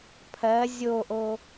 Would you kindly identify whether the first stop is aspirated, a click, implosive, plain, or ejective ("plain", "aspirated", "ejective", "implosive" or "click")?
aspirated